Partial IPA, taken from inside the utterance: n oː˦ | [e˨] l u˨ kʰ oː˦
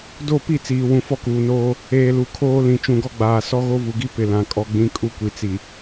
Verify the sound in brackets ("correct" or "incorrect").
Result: incorrect